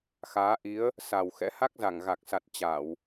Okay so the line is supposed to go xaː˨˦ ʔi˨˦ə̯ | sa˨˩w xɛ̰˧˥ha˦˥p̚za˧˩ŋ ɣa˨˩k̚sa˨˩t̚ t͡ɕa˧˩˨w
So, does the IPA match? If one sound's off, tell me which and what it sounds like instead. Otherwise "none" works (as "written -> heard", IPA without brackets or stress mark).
p̚ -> k̚